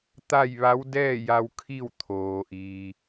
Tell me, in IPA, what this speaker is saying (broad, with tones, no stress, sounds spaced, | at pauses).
t̪ a˥˨ j ʋ a˧˥ w d ɛː˥˨ j a˧ w kʰ i˥˨ w t̪ʰ oː˩ ʔ iː˩